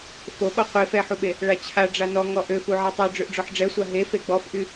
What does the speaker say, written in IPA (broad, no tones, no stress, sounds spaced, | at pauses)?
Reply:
f o ɓ ɔ qʷ e f ɛ ħ u ɓ e | ɭ a t͡ɕʰ a ɖ͡ʐ a n ɔ ŋ ɔ ʔ ø f u ʕ ɛ tˤ u ɖ͡ʐ ø ʔ ɖ͡ʐ ɔ ħ ɖ͡ʐ ɛ sʷ a ɦ e f e ɡ͡b ɔ f ʔ y